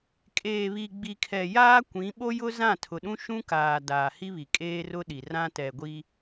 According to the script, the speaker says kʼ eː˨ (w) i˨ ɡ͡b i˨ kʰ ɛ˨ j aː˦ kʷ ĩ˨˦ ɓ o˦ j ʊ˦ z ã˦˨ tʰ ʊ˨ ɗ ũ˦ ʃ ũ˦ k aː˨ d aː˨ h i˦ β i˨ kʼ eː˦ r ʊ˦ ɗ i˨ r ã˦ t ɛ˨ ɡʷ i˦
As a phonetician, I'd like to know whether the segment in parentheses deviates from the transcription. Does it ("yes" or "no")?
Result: yes